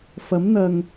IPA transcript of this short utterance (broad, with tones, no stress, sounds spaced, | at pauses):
f ɐ˨˥ m n̪ ɐ˨ ŋ